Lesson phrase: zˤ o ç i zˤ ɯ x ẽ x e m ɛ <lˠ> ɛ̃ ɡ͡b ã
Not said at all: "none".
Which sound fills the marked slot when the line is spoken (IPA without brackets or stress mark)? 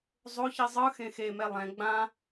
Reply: lˠ